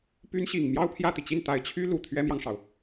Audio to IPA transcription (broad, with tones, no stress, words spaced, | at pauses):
py˥nɕi˨˩ŋ mjɑ˥˧ʊ̯pʰjä˥˩t̪i˩t͡ɕi˥˩n t̪a˧˥ɪ̯t͡ɕʰy˥ lu˨˩ t̪ʰɥɛ˥mjɑ˨ŋʂɑ˩ʊ̯